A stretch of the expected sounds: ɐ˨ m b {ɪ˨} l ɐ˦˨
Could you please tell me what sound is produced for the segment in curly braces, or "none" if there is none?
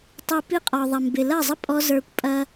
ɪ˨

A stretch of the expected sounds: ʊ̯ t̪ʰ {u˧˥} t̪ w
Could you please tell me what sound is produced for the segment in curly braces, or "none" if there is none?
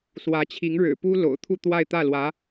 u˥˧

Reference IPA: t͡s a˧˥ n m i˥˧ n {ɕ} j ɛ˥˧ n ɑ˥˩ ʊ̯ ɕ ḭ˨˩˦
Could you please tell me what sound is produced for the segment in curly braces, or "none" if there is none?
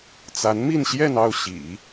ɕ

